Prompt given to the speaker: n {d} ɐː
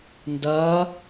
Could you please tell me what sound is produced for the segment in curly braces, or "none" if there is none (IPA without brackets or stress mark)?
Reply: d